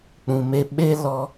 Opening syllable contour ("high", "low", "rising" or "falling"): low